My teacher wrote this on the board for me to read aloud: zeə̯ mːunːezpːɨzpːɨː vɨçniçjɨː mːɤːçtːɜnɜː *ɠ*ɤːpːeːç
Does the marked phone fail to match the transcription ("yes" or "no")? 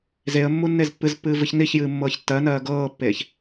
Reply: yes